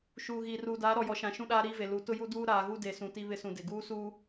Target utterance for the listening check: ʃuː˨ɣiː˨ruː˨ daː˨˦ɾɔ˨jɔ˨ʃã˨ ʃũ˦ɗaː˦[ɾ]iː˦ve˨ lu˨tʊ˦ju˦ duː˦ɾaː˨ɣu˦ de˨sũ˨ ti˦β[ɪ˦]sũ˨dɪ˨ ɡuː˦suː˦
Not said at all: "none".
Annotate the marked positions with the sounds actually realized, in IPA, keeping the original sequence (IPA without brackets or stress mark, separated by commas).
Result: ɾ, ɪ˦